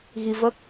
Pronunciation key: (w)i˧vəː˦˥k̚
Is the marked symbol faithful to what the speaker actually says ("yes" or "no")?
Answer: no